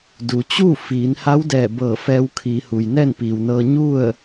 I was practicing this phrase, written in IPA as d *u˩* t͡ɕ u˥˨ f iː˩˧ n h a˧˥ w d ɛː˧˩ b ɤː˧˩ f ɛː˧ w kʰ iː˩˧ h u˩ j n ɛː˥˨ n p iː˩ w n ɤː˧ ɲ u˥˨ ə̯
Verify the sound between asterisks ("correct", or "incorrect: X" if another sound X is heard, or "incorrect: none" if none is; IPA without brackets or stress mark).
correct